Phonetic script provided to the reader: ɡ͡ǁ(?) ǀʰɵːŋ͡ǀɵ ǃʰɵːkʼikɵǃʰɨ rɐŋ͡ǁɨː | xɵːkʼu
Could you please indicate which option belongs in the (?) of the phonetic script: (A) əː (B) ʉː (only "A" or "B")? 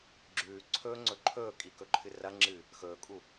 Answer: B